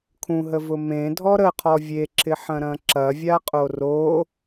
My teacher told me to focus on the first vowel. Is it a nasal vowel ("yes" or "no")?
yes